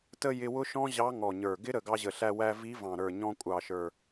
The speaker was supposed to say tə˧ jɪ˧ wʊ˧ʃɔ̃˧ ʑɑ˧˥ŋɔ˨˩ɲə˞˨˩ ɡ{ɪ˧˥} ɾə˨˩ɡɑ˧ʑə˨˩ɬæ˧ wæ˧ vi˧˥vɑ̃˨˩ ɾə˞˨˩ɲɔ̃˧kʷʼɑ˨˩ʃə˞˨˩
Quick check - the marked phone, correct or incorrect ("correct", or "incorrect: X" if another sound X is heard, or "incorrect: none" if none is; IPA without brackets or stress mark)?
correct